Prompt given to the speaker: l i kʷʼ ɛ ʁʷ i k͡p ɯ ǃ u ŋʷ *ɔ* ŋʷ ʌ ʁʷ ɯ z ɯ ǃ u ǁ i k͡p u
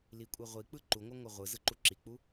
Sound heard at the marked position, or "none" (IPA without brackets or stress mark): ʌ